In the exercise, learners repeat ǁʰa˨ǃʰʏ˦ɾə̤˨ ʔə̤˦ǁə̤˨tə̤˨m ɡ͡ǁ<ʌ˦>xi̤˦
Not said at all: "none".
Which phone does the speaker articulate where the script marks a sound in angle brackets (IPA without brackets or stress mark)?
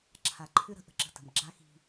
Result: a˦